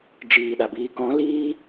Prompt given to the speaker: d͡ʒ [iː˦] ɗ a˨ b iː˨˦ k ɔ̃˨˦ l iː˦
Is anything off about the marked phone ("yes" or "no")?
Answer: yes